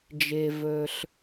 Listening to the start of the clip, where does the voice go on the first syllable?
low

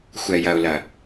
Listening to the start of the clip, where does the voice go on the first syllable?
low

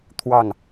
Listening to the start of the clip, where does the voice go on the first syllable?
falling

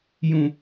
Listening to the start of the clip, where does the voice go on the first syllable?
low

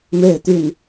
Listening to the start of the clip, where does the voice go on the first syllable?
falling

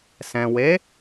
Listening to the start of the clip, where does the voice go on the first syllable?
low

